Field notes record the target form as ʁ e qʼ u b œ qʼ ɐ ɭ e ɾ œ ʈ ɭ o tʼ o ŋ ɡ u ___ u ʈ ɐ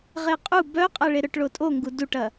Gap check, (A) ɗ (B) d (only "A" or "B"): B